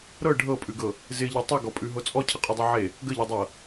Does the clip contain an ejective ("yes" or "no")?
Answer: yes